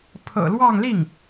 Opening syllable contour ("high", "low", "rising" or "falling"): low